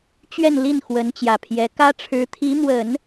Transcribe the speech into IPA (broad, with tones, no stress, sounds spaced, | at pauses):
t͡ɕ ɥ ɛ˥˧ n l i˥˩ n x w ə˧˥ n t͡ɕ j ä˨˩ pʰ j ɛ˧˥ k ä˥ ʈ͡ʂʰ ɻ̩˧˥ t̪ʰ i˧˥ m w ə˨˩˦ n